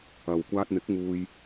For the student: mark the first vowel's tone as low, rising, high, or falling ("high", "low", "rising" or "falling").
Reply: low